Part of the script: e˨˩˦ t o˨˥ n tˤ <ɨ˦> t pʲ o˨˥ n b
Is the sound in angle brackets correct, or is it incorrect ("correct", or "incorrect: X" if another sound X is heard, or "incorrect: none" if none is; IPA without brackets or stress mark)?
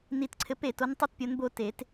correct